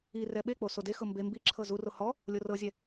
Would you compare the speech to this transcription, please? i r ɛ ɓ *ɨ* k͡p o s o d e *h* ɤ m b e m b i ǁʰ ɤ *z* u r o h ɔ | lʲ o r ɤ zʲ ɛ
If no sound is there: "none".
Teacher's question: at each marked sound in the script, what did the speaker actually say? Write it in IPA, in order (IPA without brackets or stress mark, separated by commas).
e, x, z